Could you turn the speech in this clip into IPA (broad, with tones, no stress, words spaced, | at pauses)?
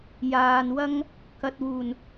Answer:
jaː˨nwɐ˥ŋ | kɐ˨t̚wuː˨˩n